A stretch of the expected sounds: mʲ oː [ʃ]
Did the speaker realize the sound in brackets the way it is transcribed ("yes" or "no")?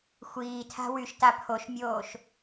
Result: yes